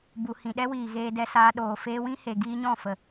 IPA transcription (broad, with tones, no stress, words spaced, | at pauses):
bu˨hĩ˨ɗɛ˦wiː˨ ɣeː˧dɛ˧saː˧ɗoː˨ feː˧wĩ˦he˨ ɡiː˧ɲɔ̃˦˨fə˨